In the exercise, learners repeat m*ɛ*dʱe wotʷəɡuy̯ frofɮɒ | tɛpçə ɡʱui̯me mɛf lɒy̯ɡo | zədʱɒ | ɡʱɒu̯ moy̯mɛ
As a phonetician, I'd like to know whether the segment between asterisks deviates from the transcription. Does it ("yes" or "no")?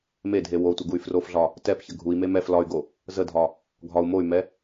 yes